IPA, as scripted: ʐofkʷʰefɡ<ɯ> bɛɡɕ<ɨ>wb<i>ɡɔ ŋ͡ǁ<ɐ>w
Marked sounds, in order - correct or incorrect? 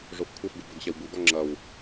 incorrect, incorrect, incorrect, correct

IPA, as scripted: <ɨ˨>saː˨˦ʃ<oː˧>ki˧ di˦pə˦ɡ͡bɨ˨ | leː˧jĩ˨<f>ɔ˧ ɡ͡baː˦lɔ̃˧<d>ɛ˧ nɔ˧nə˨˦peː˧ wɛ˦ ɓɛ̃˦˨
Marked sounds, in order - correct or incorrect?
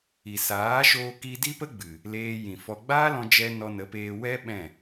incorrect, correct, correct, incorrect

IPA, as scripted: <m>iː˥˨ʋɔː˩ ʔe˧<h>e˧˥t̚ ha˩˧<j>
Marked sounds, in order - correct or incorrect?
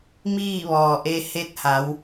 correct, correct, incorrect

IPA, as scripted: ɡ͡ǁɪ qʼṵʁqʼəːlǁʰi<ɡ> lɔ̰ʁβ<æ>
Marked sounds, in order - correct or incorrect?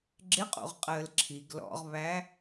correct, correct

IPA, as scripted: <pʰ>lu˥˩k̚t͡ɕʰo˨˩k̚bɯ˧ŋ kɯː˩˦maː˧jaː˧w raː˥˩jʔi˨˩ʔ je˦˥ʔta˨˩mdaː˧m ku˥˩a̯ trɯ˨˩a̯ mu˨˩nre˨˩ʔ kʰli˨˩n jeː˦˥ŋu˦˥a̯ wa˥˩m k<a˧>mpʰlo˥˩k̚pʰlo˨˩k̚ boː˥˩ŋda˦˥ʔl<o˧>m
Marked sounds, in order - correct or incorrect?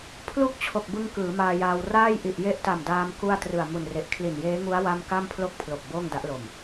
correct, incorrect, incorrect

